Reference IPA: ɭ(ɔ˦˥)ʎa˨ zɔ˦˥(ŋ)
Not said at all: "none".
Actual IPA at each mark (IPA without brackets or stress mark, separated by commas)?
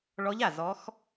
ɔ˦˥, x